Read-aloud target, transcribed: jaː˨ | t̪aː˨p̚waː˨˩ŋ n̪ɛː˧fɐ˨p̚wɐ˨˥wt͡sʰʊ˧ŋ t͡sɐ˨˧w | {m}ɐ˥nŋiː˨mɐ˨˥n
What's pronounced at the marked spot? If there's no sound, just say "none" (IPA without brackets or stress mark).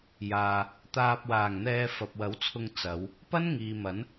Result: p